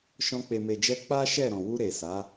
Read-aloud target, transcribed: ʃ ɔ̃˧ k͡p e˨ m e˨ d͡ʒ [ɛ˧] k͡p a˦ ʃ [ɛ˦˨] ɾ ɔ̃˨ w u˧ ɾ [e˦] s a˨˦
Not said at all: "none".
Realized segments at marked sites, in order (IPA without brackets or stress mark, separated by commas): ɛ˧, ɛ˦˨, e˨